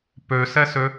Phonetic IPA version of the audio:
pøsɛsø

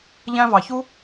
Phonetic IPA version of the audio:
ʎæ̃˦vɑ˨çu˥

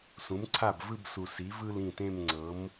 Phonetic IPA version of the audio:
sũ˩˥mǀʰa˥˩bvɯ˥˧b su˨˩si˩˥vɯ˥˧l ĩ˥˩tẽ˥˧mŋ͡ǀɤ˩˥m

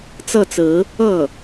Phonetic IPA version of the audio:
t͡sɤ˥˩t͡sɹ̩˧˥ | ɤ˥˩

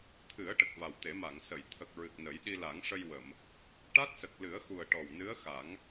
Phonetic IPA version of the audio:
t̪ʰɨ˨˩˦ə̯ ʈə˨˩k̚va˨˩w t̪e˨˩˦ma˨˩˨ŋ sə˨˩˨jt̪ʰə˨˩k̚ ɹɨ˨˩k̚nə˨˩˦j ɗi˧ la˨˩˦ŋʂə˧jwə˨˩˨m | ʈa˦˥t̚sə˨˩k̚lɨ˨˩˦ə̯xu˨˩ə̯ ʈɔ˨˩wnɨ˧˥ə̯xa˨˩˦ŋ

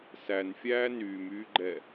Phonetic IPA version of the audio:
sænfʲæː nyːmyːɡ͡ǃɛ

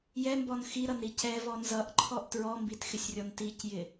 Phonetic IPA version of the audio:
jɛmbɔn xiɾʌnɾi cɛvɔ nzʌʔǃʰɔʔ tɹɔmbitxɪsʲrʲɔn ticjɪ

